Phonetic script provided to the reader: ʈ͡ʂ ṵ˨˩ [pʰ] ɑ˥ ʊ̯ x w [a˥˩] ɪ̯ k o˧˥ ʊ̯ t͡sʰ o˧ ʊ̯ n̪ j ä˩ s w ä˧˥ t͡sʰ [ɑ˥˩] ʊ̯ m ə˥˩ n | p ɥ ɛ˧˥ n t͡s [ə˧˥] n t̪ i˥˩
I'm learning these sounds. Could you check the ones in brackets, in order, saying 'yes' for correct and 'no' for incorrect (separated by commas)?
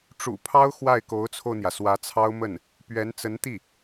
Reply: yes, yes, no, yes